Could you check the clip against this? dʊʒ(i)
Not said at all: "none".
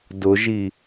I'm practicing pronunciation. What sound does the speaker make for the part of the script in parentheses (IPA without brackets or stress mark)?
i